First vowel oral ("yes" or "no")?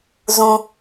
no